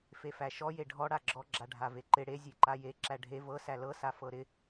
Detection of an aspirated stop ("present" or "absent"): absent